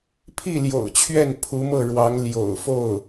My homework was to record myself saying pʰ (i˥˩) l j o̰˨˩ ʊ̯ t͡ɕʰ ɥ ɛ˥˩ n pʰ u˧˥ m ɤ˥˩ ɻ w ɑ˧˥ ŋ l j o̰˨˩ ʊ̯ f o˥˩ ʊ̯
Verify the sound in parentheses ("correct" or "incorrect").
correct